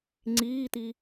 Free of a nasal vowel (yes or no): yes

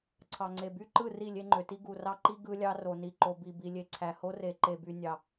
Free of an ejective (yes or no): yes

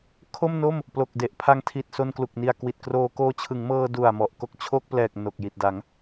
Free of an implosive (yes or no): yes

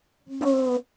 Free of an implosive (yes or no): yes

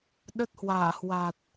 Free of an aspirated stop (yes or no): yes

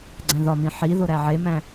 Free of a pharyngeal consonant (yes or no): no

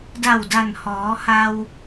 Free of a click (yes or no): yes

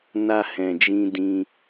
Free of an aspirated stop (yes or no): yes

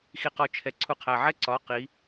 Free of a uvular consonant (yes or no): no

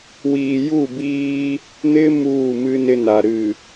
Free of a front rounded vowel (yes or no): yes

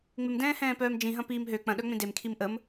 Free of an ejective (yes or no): yes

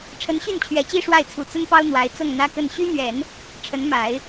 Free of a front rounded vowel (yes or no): no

